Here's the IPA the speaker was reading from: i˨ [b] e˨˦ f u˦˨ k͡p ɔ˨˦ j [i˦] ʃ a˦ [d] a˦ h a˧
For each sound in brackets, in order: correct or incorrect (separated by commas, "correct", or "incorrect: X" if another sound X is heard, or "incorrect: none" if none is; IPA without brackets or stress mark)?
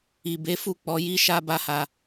correct, correct, incorrect: b